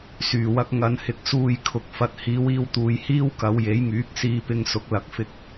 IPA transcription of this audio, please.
s yː˨˩ w ɐ˧ k̚ ŋ ɐ˧ n h ɪ˧ k̚ s uː˧ j kʰ ʊ˨ k̚ f ɐ˨ t̚ h iː˨˧ w iː˧ w t̪ uː˨ j h iː˥ w k ɐ˨˧ w j e˨˥ j ŋ yː˨˥ k̚ s iː˧ p ɪ˧ ŋ s ʊ˨ k̚ l ɐ˨˥ k̚ f ɪ˧ k̚

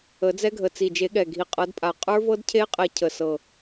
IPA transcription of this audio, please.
ə˨˩˦ d͡z ɛ˧˥ ɡʱ ə˨˩ t͡s i˨˩ d͡ʒ e˨˩˦ ɠ ɛ˨˩ ɡʱ i˨˩ qʼ ɤ˨˩˦ d pʼ a˨˩˦ qʼ ə˞˧˥ v ɤ˧˥ d cʰ e˧˥ qʼ ɛ˨˩˦ cʰ ə˨˩ s ɤ˨˩

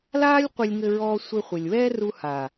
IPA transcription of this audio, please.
l aː˦ lʲ qʷ ɘ˧ lʲ ŋ ɘ˧ ɹ ɔː˧ sʷ ɘ˧ χʷ ɘ˨ lʲ w ɛː˦ r u˧ h aː˨

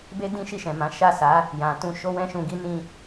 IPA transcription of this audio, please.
b e˦ d ĩ˦ ʃ i˦˨ ʃ ɛ̃˨ m ã˨˦ ʃ a˦˨ s a˨˦ | j ã˨ t ũ˧ ʃ o˦ w ɛ̃˦ ʃ ũ˧ ɡ i˦ n ĩ˦

